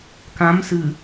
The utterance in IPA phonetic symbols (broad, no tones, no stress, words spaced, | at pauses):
kãm sɨ